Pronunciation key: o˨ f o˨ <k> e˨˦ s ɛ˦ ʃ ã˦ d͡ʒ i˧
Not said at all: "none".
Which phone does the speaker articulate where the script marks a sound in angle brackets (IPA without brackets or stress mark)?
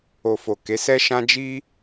k